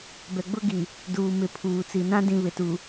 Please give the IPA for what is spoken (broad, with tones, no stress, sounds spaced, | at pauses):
b ɛ˨ ɡ͡b ʊ˦ ɡ i˨ | d uː˨ m ɪ˨ pʰ uː˨ t͡s i˨ n ã˦ d ĩ˨ β ɪ˨ t u˨